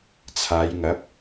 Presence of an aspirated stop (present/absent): present